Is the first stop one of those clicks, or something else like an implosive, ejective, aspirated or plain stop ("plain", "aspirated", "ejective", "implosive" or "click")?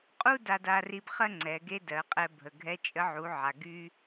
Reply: ejective